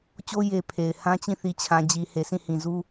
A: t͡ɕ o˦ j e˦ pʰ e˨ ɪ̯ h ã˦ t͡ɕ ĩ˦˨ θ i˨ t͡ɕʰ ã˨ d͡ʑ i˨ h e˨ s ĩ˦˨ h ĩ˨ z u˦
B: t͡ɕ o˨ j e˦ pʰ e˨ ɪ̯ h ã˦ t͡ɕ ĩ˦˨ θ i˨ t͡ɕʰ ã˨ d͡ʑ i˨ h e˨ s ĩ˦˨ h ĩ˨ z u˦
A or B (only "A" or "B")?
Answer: A